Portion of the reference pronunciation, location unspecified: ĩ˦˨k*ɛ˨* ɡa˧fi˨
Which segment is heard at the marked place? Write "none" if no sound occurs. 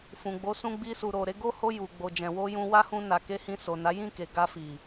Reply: e˨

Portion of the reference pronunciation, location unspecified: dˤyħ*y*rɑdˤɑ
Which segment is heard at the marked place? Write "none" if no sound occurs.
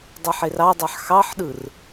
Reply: e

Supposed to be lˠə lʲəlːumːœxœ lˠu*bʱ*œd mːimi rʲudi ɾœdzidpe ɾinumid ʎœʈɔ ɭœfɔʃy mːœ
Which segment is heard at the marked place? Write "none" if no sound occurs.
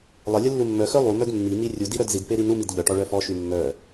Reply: m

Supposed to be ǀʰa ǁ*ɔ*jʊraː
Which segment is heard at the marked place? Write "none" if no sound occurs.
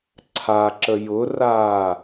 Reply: ə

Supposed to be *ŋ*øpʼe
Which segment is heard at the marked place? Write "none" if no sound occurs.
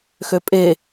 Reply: x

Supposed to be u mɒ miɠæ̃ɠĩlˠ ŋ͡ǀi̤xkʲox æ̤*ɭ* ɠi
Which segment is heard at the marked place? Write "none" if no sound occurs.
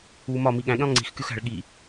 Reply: ɭ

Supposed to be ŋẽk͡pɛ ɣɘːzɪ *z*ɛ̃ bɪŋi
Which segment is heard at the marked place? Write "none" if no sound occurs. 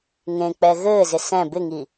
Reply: s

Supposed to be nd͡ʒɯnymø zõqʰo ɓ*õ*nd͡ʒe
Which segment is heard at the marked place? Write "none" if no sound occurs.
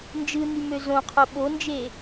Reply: o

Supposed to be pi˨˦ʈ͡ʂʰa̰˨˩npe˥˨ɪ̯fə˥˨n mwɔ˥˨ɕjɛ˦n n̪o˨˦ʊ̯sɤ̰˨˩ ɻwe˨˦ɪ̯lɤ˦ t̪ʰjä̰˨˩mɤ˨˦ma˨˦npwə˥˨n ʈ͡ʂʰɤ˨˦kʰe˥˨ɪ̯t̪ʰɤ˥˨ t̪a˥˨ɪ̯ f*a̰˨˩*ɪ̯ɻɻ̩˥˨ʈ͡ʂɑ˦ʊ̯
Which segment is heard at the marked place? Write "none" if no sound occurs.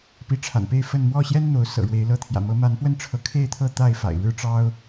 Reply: a̰˨˩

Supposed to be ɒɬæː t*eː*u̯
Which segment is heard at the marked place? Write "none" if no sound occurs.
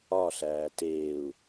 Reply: eː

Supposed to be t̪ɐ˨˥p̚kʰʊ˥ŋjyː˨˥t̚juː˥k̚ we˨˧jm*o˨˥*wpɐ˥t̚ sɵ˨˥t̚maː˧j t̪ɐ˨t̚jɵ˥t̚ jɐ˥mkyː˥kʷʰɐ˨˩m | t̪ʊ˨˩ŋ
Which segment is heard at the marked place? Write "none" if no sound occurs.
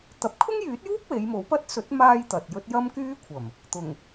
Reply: o˨˥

